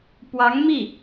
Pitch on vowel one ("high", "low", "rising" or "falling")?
rising